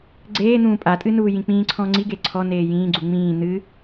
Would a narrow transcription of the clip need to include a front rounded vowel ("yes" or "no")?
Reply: no